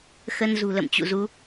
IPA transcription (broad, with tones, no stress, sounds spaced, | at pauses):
x ə˧ n z ṳ˨˩ l ə̰˧˨ m t͡ɕ ṵ˧˨ z u˨˦